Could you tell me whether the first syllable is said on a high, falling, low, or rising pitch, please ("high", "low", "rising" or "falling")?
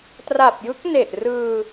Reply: low